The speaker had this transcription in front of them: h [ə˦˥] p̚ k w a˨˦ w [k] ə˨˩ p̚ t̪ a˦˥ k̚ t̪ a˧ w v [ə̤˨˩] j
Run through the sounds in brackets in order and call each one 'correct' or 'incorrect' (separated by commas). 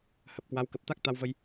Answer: incorrect, correct, incorrect